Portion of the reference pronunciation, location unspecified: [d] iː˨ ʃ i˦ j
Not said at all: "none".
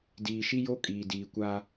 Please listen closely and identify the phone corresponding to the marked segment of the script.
d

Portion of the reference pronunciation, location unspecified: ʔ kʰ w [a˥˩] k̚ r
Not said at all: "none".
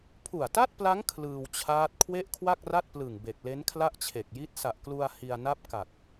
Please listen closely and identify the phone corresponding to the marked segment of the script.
a˥˩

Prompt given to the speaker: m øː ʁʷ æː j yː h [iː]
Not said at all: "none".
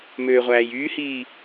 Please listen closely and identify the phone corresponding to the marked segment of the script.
iː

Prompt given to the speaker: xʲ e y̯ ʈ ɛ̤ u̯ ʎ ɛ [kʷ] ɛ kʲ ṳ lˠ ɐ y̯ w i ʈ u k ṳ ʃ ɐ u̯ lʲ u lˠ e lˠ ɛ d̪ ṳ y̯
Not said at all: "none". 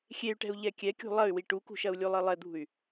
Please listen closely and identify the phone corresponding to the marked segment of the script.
kʲ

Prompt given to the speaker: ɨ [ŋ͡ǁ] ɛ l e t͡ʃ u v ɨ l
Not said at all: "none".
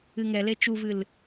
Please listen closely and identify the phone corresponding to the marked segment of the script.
ŋ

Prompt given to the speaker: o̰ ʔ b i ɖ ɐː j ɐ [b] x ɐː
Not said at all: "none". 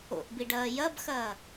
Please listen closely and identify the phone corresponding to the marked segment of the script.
b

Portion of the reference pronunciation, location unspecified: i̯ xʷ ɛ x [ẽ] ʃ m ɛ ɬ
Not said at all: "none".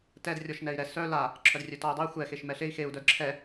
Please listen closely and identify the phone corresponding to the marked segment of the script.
e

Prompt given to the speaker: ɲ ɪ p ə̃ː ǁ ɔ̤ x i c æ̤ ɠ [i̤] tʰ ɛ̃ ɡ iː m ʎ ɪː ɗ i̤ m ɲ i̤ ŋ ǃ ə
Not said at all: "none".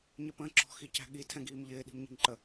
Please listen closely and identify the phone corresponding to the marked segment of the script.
i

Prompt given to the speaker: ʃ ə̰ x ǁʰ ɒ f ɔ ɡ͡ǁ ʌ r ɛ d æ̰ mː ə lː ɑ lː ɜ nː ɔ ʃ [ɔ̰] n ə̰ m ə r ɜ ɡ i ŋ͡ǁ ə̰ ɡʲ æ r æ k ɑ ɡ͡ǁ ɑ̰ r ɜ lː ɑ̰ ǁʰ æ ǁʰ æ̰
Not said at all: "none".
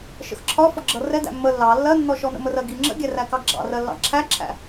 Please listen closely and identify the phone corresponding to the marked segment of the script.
ɔ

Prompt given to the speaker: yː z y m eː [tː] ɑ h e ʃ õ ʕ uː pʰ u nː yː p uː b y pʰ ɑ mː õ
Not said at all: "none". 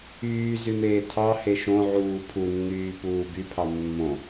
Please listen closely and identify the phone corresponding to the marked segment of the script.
tʰ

